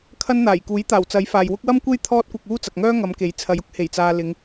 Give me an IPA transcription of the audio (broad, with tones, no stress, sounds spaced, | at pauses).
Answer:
kʰ ɐ˥ n n̪ aː˨˩ j k uː˨˥ j t̪ aː˨˩ w t͡s ɐ˨˥ j f aː˨ j w ʊ˥ k̚ w ɐ˥ m kʷ e˥ j t̪ʰ ɔː˥ t̚ kʷ ɐ˧ k̚ uː˥ t͡s ɐ˨ k̚ ŋ œː˥ ŋ ɐ˨˧ m k e˨˥ j t͡sʰ ɐ˨˧ j ʊ˥ k̚ h e˨˩ j t͡s aː˨ l ɪ˨˧ ŋ